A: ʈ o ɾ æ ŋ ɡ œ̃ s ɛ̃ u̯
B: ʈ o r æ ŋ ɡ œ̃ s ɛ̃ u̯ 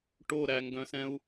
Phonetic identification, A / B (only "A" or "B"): A